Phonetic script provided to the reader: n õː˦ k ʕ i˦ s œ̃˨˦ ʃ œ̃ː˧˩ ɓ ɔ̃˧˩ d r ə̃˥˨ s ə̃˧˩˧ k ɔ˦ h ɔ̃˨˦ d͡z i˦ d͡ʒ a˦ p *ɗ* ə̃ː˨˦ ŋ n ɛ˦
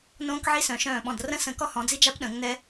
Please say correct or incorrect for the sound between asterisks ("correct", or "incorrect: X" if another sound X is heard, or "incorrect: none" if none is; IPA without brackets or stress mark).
correct